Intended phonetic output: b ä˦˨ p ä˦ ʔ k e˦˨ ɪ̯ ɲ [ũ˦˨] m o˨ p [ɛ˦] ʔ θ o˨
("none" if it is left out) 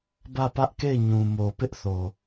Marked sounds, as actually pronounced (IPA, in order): ũ˨, ɪ˦

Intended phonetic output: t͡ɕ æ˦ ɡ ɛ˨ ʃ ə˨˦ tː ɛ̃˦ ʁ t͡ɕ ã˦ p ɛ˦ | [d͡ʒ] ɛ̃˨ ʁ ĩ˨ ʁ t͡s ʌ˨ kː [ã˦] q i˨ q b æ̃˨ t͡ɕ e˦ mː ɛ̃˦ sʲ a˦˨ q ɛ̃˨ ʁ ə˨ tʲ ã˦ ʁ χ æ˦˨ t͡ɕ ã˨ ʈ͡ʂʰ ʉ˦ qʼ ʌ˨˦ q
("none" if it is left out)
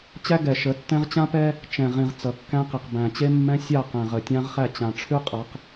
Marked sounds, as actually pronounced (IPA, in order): t͡ʃ, æ̃˦

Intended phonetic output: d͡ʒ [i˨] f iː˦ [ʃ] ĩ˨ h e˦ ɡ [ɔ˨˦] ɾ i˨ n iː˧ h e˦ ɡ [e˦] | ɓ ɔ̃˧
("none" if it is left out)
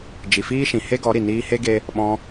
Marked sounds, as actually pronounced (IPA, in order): i˨, ʃ, ɔ˨˦, e˦

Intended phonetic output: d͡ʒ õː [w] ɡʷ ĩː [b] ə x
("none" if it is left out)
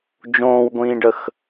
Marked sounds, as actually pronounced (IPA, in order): w, ɖ

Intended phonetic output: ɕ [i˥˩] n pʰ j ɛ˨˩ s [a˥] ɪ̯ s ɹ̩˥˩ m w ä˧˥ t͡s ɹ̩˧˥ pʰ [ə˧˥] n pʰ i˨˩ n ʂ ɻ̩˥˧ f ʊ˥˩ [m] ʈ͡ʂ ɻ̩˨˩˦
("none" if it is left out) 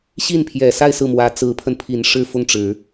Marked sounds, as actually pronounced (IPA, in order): i˥˩, a˥˧, ə˧, ŋ

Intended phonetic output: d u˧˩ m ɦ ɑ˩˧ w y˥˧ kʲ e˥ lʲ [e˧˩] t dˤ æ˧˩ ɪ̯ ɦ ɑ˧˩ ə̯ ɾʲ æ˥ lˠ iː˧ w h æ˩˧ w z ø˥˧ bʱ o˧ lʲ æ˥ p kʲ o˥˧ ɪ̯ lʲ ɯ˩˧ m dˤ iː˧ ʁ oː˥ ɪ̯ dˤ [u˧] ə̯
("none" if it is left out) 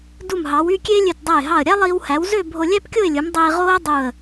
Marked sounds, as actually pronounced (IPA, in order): ø˧˩, u˧˩

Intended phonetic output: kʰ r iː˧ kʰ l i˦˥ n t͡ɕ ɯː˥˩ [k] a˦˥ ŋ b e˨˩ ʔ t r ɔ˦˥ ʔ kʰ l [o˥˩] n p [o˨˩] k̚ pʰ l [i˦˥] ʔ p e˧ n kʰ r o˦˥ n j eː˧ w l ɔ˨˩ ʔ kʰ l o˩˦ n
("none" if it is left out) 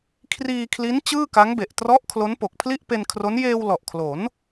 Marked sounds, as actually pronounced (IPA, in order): k, o˦˥, o˨˩, i˥˩

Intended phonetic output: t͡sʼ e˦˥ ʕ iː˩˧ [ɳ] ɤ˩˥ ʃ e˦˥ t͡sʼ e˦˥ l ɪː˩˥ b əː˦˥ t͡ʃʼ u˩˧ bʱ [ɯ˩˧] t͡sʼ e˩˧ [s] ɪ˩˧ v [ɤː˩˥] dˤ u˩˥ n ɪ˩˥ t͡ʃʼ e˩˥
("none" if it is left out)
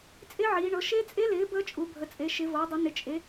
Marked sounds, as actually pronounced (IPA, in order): ɳ, ə˩˧, ʃ, ɤː˩˥

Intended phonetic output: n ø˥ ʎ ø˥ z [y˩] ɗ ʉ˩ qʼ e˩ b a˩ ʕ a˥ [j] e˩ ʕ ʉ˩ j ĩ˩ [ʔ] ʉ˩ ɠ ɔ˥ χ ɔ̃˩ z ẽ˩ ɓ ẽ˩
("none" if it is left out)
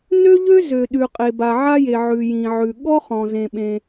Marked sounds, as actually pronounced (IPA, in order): ø˩, j, ʕ

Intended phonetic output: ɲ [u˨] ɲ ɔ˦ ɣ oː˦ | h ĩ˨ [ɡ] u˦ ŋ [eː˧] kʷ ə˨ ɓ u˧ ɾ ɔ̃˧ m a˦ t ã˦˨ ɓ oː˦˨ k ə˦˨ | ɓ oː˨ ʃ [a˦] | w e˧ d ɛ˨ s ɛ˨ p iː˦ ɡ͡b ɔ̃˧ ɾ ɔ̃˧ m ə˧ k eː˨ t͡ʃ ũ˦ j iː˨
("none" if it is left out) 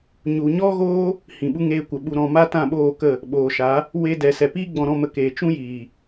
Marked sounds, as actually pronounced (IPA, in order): u˨, ɓ, eː˧, a˨˦

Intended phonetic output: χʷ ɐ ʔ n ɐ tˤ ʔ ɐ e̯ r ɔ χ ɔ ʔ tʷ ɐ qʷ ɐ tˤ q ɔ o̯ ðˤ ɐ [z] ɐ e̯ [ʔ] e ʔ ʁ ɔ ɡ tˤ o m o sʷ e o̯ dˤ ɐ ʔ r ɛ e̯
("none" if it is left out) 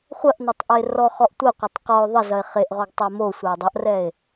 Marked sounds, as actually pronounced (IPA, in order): z, χ

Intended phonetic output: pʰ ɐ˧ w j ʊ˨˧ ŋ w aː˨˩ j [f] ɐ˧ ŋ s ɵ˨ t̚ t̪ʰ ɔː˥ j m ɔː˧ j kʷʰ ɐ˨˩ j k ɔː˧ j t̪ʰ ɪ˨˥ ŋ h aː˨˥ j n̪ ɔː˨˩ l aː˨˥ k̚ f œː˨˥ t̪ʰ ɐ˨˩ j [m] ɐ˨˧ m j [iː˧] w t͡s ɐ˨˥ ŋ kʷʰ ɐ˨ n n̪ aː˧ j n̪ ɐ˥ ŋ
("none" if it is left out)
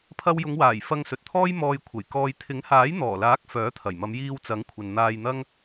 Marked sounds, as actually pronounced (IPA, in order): f, m, iː˧

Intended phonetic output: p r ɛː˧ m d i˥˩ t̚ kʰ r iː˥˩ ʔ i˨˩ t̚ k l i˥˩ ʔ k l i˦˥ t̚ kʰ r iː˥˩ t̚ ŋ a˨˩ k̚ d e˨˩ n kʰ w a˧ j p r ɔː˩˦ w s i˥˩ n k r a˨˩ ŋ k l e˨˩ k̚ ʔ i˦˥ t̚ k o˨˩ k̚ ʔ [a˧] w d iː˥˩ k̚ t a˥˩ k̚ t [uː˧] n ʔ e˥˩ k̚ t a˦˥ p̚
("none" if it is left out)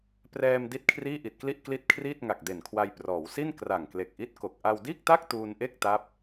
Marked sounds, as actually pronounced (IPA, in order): a˧, uː˧

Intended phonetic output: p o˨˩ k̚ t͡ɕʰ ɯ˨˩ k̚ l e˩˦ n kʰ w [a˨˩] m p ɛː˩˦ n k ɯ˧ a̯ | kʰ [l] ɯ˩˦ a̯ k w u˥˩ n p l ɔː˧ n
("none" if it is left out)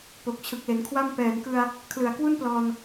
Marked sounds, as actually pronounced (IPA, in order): a˥˩, l

